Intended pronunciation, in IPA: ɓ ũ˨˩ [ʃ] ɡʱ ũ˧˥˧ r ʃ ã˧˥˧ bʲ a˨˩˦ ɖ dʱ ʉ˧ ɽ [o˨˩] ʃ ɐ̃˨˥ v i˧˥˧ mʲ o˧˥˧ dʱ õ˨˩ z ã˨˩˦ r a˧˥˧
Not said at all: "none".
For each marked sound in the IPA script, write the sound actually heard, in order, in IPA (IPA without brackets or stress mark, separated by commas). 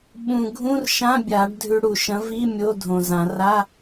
none, u˨˩